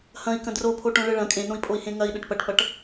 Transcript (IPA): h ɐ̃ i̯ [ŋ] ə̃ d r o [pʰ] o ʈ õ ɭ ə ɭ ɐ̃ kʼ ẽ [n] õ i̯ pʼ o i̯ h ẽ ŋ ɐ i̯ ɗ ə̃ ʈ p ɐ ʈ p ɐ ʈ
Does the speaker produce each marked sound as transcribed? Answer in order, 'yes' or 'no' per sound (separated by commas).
no, yes, yes